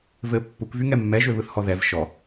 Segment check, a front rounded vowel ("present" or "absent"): present